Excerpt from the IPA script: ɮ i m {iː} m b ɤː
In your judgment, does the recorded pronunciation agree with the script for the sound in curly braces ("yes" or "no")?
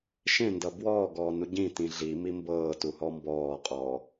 no